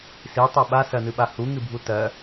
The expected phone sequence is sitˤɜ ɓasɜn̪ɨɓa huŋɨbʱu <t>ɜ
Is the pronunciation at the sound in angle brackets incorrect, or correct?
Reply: correct